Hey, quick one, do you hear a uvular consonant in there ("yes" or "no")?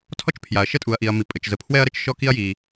no